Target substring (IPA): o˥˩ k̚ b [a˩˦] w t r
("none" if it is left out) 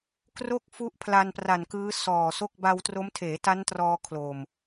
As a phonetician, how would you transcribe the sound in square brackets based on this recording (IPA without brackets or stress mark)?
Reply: a˧